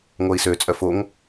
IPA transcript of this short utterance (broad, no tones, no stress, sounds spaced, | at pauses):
ŋʷ œ i̯ s ø t͡sʼ œ f o ŋ